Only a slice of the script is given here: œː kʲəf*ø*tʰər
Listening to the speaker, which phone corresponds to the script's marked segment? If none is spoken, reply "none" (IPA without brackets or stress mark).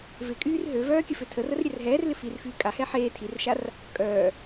ø